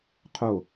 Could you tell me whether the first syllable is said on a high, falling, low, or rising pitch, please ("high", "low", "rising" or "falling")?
falling